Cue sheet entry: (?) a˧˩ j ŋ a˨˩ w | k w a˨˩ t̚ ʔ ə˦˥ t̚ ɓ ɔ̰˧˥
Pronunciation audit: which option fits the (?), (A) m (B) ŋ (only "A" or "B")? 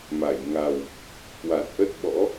A